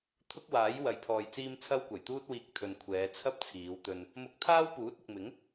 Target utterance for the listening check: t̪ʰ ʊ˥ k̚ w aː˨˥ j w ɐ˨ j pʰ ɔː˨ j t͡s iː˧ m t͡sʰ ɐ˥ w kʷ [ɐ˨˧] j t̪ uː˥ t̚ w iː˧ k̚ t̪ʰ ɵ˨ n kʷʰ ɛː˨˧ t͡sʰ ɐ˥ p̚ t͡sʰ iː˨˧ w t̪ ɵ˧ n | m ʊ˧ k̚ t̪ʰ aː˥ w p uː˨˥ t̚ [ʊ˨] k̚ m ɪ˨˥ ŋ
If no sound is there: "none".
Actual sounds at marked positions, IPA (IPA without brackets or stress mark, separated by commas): ɐ˨˩, ʊ˨